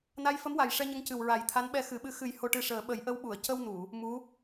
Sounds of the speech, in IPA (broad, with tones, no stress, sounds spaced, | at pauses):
n a˧˥ j f ə˧˥ m w a˨˩ j ʂ ɛ˧ ɲ ə˧˥ ŋ c ɨ˨˩ w ɹ a˨˩˦ j t̪ʰ a˧˥ n ɓ ɛ˧ x ɨ˨˩˦ ɓ ɨ˧˥ x ɨ˨˩˦ j h o˧ ʈ ɨ˧ ʂ əː˨˩˦ ɓ ə˨˩˦ j ʔ ə˧˥ w ɓ u˨˩˨ ə̯ c ə˧ w n u˨˩˨ | m u˧˥